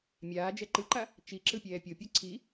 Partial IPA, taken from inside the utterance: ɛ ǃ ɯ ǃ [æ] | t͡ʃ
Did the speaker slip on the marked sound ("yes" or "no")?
yes